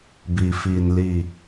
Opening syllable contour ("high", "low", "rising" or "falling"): low